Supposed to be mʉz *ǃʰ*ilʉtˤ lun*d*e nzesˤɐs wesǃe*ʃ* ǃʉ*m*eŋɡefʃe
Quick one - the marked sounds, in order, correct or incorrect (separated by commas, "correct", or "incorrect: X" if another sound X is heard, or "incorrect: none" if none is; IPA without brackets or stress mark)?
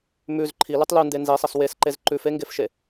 correct, correct, incorrect: z, incorrect: f